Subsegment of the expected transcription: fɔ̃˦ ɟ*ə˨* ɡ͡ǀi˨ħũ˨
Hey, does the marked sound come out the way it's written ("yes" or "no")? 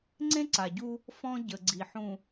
yes